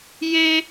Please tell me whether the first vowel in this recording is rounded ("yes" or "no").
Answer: no